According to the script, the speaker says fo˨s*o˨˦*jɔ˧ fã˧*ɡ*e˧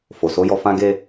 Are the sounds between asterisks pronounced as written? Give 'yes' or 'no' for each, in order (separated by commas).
yes, yes